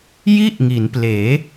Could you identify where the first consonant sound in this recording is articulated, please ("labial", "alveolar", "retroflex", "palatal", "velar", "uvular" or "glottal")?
palatal